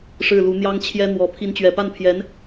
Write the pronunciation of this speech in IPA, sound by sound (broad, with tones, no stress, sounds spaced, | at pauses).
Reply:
ʂ ɻ̩˥˩ l u˧˥ n̪ j ɑ˥ ŋ t͡ɕʰ j ɛ˥ n̪ w ɔ˧˥ pʰ i˧˥ n t͡ɕ ɥ ɛ˨˩ p a˥˩ n pʰ j ɛ˧˥ n